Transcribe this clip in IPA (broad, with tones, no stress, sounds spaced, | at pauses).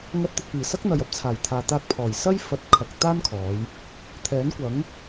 ŋ ɐ˧ t̚ t̪ ɪ˨ k̚ p iː˨˩ s ɐ˥ k̚ n̪ ɐ˨ j ɐ˥ p̚ t͡sʰ aː˨˩ j t̪ʰ aː˨ t̪ aː˧ k̚ pʰ ɔː˨˩ j s ɐ˥ j f ɐ˨ t̚ kʰ ɐ˨ k̚ t̪ aː˥ n kʰ ɔː˨˧ j | t̪ʰ ɛː˨˥ n kʷ ɐ˨˥ ŋ